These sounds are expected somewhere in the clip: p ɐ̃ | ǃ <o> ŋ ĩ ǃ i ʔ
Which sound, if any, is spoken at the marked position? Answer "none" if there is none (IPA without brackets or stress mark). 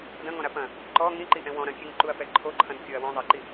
ɔ